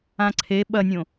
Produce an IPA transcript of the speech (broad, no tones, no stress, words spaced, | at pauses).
ãǀʰe ɓɐnʲõ